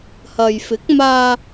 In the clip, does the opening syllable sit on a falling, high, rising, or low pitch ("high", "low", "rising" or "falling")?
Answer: low